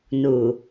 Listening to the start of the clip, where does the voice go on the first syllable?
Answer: low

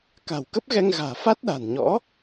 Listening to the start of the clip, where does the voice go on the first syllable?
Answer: low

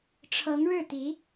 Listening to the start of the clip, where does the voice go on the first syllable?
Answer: rising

